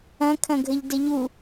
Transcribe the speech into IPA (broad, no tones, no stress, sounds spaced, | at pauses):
ɐ̃ kʰ ɐ̃ ɡʱ ə ʎ d ə ʎ u